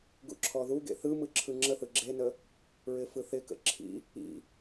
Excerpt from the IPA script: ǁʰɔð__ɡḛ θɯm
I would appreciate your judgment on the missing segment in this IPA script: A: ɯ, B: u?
B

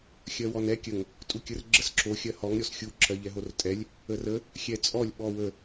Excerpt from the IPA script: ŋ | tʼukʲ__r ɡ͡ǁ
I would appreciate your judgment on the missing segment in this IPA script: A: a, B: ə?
B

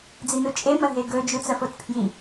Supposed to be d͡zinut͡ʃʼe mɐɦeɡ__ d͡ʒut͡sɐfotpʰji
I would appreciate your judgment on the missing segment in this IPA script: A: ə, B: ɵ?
B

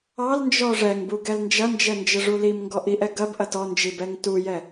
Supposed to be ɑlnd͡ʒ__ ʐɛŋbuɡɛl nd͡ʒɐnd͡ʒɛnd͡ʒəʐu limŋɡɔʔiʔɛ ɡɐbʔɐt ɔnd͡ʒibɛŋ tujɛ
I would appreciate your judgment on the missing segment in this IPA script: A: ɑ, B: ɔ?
B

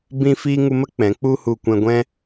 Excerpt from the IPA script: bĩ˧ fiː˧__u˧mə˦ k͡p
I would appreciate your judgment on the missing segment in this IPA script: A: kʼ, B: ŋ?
B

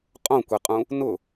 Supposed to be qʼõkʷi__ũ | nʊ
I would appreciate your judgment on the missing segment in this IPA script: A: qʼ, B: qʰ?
A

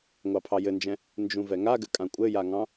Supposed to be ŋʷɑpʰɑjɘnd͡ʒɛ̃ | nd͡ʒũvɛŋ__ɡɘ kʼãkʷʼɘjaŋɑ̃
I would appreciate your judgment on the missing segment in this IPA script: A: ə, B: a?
B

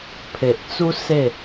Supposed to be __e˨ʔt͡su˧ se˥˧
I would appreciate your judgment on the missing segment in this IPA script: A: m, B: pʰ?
B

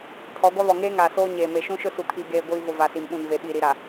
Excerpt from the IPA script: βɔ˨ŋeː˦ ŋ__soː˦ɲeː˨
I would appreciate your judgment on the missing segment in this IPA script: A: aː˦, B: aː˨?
B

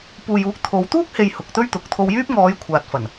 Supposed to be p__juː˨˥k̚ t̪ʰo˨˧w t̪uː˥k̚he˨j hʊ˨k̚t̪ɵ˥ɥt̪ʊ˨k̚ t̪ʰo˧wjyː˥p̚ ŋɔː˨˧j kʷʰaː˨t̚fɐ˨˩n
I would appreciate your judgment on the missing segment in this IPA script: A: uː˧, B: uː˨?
B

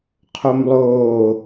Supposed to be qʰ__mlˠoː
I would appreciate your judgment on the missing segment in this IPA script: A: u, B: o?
B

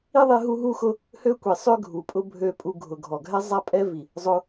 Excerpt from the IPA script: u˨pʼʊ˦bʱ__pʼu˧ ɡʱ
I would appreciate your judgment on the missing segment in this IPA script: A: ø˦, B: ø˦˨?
B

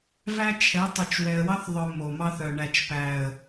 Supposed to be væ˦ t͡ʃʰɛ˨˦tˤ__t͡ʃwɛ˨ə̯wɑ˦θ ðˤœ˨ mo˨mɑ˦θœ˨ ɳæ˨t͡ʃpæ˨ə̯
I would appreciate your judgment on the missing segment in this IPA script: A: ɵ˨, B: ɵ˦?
A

